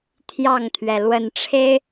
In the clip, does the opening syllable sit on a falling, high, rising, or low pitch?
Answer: falling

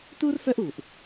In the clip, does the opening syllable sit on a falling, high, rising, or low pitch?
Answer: high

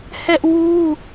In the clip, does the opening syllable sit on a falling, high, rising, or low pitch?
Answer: high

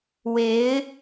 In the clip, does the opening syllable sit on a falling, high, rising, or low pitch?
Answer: rising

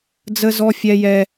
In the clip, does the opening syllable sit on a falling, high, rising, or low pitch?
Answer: high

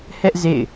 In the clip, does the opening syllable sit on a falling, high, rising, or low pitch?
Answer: high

